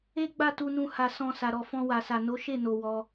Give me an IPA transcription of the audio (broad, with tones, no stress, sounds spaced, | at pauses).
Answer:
e˦ ɡ͡b a˦˨ t u˧ n ũ˧ h a˨ s ɔ̃˨ s a˧ ɾ ɔ˧ f ɔ̃˧ w a˨ s a˨ n o˨˦ ʃ e˦˨ n o˨ w ɔ˧